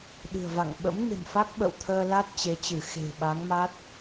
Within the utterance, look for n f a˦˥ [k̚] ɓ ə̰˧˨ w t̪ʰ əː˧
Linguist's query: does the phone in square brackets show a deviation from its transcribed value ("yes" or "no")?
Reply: no